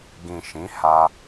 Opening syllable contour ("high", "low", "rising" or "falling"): low